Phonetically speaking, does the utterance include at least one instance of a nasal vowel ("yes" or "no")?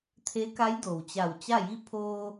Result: no